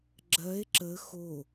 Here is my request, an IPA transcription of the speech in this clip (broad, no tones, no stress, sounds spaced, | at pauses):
ɡ͡ǁ ɜ e̯ ǁ ə x o